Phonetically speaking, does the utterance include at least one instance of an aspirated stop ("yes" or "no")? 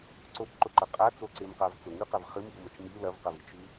no